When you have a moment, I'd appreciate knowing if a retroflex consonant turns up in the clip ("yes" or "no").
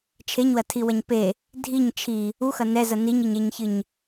no